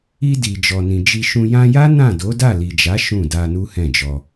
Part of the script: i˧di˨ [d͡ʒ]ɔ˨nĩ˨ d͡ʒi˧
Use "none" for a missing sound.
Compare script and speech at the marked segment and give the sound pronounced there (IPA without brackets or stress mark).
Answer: d͡ʒ